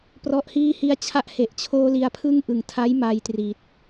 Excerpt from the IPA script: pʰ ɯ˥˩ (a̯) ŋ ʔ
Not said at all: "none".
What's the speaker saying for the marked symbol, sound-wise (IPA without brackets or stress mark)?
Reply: none